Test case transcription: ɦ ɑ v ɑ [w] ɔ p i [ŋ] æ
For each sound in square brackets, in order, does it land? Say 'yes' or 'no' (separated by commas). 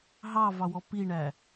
yes, no